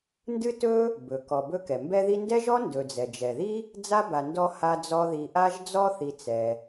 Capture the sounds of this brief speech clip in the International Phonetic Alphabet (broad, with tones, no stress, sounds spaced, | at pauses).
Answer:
n d ɨ˥ t ɵ˥ | b ɵ˩ k ɔ˨ b ɵ˦ k ɛ˩ m b ɛ˦ ð i˦ n d ɛ˥ ʒ ɔ˥ n d ɵ˨ d͡z ɛ˩ d͡ʒ ɛ˩ ð i˥ | d͡z a˥ b a˨ n d ɔ˦ h a˦ d͡z ɔ˦ ð i˨ ʔ a˦ ʒ d͡z ɔ˦ θ i˨ t͡s ɛ˩